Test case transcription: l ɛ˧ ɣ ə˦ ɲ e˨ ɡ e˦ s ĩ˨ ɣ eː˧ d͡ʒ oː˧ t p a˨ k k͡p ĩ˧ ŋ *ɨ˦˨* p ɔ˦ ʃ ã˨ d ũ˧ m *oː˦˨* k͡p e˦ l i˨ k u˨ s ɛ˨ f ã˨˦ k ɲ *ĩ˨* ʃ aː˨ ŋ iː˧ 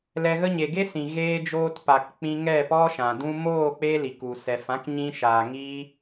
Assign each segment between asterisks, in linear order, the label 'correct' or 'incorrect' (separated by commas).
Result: incorrect, correct, incorrect